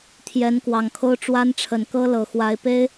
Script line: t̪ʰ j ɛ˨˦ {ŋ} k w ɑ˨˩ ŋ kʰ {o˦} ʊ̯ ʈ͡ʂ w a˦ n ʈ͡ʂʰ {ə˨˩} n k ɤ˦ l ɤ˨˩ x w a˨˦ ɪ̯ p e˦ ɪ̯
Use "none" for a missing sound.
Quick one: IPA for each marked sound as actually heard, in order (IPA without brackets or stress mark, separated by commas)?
n, o˦, ə˨˩